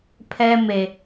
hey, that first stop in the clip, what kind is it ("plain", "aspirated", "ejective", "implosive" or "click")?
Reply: aspirated